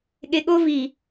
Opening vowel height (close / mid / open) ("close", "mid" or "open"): mid